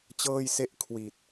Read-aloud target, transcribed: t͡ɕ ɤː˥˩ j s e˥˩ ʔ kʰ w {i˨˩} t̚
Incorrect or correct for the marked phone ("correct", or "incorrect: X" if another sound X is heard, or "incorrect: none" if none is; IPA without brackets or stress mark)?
correct